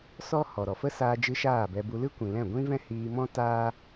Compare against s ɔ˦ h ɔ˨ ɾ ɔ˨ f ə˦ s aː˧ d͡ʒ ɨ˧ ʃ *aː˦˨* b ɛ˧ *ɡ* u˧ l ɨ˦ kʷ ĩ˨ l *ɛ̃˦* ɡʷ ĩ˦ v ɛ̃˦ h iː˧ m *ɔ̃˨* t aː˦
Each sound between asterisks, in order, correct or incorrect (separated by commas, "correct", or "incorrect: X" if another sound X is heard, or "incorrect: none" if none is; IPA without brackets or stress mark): correct, incorrect: b, incorrect: ɛ̃˦˨, incorrect: ɔ̃˦